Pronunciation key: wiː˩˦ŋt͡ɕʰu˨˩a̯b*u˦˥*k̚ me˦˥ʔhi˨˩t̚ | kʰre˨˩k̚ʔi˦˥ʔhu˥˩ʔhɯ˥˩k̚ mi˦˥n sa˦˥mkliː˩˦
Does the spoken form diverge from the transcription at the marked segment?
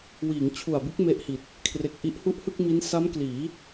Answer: yes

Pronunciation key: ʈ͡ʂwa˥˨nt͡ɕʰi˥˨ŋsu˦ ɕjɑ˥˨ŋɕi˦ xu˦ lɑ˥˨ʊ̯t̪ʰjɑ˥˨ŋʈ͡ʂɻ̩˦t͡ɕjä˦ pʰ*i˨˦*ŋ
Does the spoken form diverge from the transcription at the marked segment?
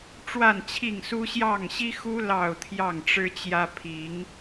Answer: no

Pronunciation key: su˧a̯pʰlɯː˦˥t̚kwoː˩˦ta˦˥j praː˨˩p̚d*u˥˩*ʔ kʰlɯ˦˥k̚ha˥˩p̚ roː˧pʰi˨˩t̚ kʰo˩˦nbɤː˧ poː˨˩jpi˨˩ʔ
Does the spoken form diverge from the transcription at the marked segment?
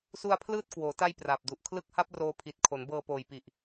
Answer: yes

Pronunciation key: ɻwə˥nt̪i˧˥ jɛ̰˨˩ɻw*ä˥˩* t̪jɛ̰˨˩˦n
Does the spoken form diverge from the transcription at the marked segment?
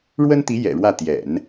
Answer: no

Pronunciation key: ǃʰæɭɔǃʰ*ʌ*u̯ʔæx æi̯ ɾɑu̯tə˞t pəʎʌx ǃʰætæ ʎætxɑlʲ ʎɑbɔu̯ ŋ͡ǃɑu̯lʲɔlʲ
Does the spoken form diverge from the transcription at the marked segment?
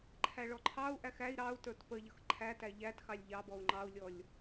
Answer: yes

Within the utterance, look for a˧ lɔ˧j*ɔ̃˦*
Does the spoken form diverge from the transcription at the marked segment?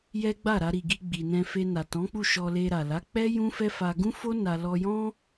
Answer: no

